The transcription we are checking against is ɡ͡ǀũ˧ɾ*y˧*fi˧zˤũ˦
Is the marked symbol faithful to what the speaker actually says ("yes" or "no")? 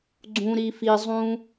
no